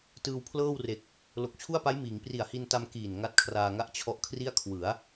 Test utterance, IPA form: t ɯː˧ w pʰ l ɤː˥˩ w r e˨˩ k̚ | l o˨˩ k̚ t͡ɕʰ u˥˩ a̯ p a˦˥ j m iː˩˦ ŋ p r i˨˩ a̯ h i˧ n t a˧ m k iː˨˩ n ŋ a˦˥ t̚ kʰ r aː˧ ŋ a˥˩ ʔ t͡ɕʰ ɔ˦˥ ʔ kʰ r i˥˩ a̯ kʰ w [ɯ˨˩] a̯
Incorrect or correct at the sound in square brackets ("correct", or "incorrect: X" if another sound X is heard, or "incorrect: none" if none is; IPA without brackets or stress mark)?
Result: incorrect: ɯ˩˦